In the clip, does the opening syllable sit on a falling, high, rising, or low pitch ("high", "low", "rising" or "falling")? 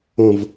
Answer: low